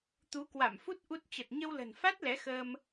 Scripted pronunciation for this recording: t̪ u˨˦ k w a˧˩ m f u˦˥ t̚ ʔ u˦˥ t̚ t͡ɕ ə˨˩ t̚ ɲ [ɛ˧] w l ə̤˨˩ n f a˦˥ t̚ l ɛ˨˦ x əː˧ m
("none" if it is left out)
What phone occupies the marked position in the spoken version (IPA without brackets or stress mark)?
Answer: ə˧